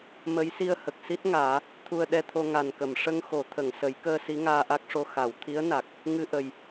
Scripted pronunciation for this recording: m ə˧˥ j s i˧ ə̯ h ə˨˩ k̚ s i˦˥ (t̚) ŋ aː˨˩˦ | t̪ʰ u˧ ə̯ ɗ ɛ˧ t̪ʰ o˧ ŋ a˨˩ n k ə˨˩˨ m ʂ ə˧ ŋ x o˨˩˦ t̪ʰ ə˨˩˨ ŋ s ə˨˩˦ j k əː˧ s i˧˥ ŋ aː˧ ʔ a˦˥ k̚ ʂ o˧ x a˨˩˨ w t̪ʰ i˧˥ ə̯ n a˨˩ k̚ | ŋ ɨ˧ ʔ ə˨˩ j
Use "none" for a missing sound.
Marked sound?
t̚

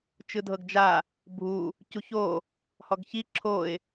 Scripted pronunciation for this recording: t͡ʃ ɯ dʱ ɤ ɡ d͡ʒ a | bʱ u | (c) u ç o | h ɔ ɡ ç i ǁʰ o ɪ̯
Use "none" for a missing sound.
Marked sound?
c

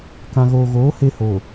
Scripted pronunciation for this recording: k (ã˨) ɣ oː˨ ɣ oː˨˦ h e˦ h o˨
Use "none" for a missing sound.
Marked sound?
ã˨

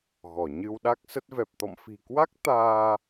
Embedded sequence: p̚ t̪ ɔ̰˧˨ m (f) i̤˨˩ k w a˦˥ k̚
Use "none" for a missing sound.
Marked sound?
f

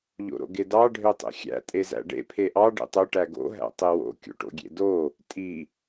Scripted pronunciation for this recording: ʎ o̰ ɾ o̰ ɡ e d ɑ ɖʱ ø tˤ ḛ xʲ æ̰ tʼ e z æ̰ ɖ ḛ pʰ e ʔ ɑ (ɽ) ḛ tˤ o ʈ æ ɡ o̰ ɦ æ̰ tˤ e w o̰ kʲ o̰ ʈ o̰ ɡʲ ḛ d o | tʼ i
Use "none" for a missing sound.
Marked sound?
ɖ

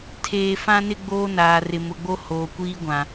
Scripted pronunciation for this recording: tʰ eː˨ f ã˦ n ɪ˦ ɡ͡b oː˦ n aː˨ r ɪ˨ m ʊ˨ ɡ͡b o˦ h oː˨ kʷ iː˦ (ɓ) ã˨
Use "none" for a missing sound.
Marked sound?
ɡʷ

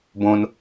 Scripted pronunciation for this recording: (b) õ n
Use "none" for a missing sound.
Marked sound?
b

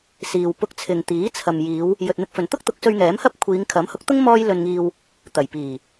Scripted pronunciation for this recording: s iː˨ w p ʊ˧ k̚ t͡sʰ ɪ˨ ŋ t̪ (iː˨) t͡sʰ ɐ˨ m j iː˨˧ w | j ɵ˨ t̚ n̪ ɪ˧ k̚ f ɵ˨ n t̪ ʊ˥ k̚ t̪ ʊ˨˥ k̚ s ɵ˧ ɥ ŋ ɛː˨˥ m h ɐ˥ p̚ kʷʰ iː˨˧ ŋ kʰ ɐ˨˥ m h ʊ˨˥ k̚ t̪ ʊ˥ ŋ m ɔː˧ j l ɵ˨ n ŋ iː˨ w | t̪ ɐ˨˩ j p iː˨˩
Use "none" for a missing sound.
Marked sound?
iː˨˥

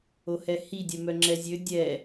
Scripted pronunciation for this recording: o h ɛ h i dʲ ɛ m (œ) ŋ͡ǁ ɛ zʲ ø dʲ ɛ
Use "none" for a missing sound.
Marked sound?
œ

